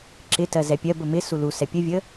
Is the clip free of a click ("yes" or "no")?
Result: no